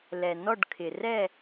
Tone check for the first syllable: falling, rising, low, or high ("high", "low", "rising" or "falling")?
low